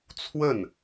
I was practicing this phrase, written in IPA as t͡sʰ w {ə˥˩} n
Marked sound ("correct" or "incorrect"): correct